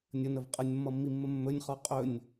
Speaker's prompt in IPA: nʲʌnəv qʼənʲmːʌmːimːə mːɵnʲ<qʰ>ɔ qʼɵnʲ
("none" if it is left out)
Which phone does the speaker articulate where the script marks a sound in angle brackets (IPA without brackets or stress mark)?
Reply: χ